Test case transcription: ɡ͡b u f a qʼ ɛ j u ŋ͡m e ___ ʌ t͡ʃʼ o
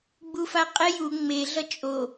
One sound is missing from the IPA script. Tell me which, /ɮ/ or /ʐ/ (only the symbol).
ɮ